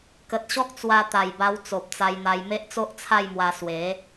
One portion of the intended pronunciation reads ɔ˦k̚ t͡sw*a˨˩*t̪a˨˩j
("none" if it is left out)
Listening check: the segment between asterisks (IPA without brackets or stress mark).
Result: a˧